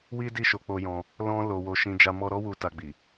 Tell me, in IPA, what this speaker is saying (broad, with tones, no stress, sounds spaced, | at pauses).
w i˦ d i˦˨ ʃ o˧ k͡p o˦ j ɔ̃˦ | l ɔ̃˧ l o˧ w o˧ ʃ ĩ˧ d͡ʒ a˧ m ɔ˧ ɾ ɔ˦ w u˧ t a˧ ɡ͡b i˨